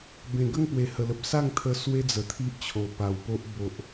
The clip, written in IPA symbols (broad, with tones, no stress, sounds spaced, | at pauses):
b ẽ˨˩ ɡ ə˥˧ ŋ p w e˨˩ h ə˨˩ l ə˨ p̚ s a˥˧ ŋ t̪ʰ ə˧ s w e˦ d͡z ə˨˩ t̪ʰ i˦ ʔ t͡ɕʰ o˨˩ p a˨˩ w p o˦ ʔ b o˨ ʔ